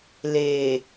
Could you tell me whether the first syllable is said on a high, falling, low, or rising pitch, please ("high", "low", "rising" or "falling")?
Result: low